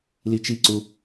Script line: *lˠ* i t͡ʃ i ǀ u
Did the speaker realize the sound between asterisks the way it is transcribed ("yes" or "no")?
no